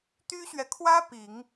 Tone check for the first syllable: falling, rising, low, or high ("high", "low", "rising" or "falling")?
high